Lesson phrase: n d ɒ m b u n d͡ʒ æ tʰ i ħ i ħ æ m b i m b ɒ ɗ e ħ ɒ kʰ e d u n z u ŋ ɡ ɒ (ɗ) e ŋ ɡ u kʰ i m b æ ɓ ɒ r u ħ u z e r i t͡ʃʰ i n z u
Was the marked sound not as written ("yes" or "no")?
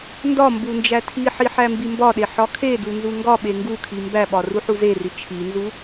yes